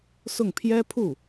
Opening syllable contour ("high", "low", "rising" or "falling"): falling